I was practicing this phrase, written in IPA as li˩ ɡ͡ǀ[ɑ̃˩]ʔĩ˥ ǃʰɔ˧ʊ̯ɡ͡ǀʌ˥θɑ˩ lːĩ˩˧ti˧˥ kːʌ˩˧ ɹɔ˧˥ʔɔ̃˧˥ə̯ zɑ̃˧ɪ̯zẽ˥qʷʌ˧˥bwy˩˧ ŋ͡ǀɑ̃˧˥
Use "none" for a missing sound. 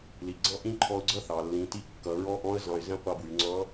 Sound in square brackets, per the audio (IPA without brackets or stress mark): ɑ̃˥